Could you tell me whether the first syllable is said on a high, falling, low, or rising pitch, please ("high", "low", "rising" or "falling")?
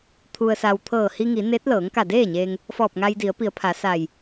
low